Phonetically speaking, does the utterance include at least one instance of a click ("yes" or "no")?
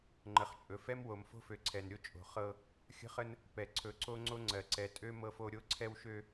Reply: yes